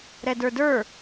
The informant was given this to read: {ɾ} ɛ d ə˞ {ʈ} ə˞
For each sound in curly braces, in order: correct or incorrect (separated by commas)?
correct, incorrect